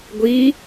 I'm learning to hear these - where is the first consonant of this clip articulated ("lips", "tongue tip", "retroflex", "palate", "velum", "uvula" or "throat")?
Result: velum